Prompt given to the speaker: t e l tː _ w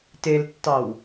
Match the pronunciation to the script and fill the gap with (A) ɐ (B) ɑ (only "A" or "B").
B